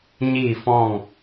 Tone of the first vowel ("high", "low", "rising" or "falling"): falling